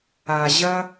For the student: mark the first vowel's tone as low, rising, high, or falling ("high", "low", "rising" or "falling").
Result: low